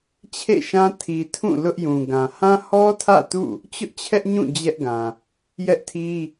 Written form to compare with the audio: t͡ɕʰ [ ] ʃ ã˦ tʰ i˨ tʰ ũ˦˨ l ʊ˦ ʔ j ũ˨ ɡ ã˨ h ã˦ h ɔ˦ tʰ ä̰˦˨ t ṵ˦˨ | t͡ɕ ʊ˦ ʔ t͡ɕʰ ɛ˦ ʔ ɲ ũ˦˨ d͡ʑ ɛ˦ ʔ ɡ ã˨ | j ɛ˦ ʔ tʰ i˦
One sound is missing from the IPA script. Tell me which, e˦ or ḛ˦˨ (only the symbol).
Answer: ḛ˦˨